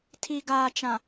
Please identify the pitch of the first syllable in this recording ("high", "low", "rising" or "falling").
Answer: low